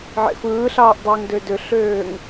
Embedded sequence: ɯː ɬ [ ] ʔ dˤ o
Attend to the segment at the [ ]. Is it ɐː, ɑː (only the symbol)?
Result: ɑː